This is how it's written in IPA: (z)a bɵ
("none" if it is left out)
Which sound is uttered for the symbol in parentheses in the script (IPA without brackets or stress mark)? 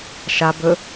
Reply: ʃ